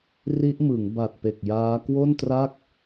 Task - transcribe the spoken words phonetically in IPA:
ri˦˥ʔmɯ˩˦ŋ ba˨˩t̚pe˨˩k̚ jaː˦˥ kwo˥˩ntra˥˩k̚

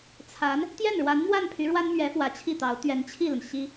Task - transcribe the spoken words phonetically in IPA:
t͡sʰa˧˥n | t̪jɛ˥˩nɻwa˧˥nmwa˥˩npʰy˧˥ ɻwa˥nmɥɛ˧˥ fwä˧˥t͡ɕʰi˥˩t̪ɑ˧˥ʊ̯ t̪ɥɛ˧˥nt͡ɕʰi˥˩lə˩n ɕi˥

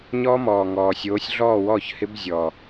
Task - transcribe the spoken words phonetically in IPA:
ɲɔː˦˥mɔː˨˩ŋɔː˨˩sʲoː˨˥sʲ ɮɔː˥˨wɔː˥˨çhɪ˦˥b zʲɔ˨˩

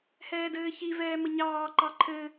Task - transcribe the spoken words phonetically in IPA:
hɛːdɘːçi vɛːməɲɑː ǃɑǃʰɘ

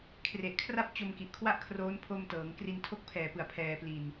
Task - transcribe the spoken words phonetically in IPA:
kʰre˨˩ʔkʰra˥˩p̚ t͡ɕo˧mki˨˩ʔkʰwa˥˩ʔkʰroː˦˥n pʰo˧mtɤː˩˦ŋkri˧n tʰo˦˥k̚pʰɛː˨˩pɯ˨˩a̯ pʰɛː˧pli˧n

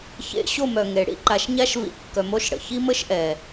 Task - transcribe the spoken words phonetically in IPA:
çḛ˨ ɕo˦˨mœ˨ ŋe˨ ɽḭ˦ǃa˨ʃɲa˦ʃ vḭ˦˨kːœ˧mo˦ʃɽə̰˨ çi˦mə˦ʃʔɛ˨

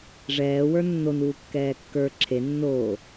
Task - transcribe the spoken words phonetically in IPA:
ʐɛːwə˞ nːonuː kːɛːkːə˞ ǁʰe nːoː

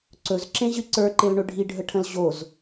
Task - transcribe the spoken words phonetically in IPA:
ǀɵzǁẽʑɨ ǀə˞ǃelɳɵ ɖʱiɖʱəʈʰə̃l ʑoz

